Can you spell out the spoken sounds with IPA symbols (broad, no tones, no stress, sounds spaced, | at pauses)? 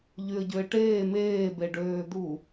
ʎ y ə̯ ɟ ø ɪ̯ ʈ eː m eː b e ɖ øː d̪ u